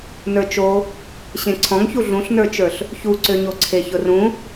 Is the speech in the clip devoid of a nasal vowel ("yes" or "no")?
no